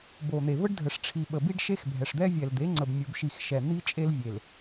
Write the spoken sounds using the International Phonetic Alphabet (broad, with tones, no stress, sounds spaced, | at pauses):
b o˨ n̪ e˨ v ə˦ ɖ dʱ ə˨ ʂ ʈ͡ʂʰ i˨ ɓ ə˨ b i˦ ɖ ʃ e˦ x bʱ ɛ˨ ʂ d̪ ɛ˦ vʲ ɛ˨ l d̪ e˨˦ ŋ͡ǀ ə˨ b mʲ u˨ b ʃ i˨ x ʃ ɛ˨ n̪ i˦ t͡ʃʼ e˦ l vʲ e˨ l